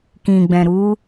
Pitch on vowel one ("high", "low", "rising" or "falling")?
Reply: low